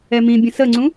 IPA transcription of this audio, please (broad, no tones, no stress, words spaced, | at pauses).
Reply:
ɛmĩbʲə̃ səŋ͡ǀũ